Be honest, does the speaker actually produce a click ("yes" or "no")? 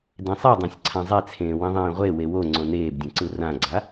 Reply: yes